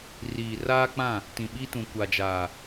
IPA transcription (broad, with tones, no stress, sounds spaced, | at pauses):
r iː˨ r aː˦ k͡p ã˦˨ | t ĩ˨ ɓ i˦ t ũ˨ kʷ a˨ d͡ʒ aː˨